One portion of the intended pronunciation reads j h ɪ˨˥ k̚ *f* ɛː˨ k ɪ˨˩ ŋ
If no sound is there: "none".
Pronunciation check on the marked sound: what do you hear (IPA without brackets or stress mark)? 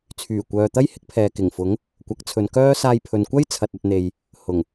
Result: pʰ